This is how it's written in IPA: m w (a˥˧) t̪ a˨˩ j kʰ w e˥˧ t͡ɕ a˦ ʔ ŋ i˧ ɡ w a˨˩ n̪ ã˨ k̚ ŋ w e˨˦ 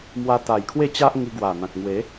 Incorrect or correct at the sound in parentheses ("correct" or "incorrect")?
incorrect